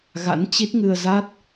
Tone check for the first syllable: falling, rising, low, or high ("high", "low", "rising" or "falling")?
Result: rising